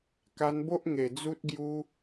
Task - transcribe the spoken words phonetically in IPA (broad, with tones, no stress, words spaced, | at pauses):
ka˧nbo˦ʔŋe˨˩ d͡zu˦t̚ɡju˦